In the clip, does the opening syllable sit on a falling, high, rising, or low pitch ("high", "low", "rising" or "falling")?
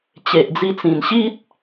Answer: low